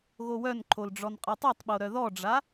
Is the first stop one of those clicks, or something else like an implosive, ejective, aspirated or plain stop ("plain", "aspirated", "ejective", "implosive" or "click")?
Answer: click